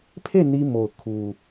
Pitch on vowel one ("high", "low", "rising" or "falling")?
falling